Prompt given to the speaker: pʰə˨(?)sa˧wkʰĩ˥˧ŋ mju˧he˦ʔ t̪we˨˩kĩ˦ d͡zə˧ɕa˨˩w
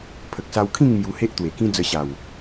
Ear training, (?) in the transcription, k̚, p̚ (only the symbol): k̚